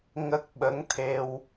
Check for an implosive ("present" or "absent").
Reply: present